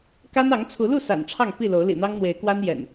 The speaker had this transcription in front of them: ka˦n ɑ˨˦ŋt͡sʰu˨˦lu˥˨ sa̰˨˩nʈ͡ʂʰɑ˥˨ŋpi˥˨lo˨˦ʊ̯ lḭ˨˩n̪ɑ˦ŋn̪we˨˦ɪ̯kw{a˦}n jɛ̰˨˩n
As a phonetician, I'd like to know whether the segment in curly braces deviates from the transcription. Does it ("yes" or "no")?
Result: no